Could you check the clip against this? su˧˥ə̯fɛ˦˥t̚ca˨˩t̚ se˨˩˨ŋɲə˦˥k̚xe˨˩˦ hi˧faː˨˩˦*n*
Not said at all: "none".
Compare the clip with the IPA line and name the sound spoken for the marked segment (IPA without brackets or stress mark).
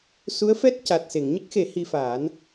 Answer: n